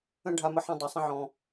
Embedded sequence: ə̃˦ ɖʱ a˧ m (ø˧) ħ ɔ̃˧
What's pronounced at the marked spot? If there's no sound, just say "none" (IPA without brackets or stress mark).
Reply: ə˧